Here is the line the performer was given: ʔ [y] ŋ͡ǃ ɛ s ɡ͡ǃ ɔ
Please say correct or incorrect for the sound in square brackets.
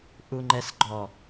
incorrect